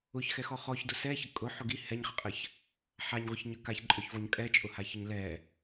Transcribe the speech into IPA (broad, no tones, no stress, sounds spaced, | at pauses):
ʊ ç x ɛ x ɔ χ ɔ ç d ʊ s ɛ ç ə kʼ ʊ ħ ʊ ɡ i h ɛ ɲ χ ə qʼ ə ç | ħ a ɲ ʁʷ ə ç ɲ ə k a ç ǃʼ œ ç v ɔ ɲ kʼ ɛ t͡ʃʼ ʊ h a ç ə ɲ l ɛ